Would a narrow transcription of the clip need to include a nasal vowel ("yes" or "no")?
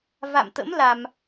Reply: no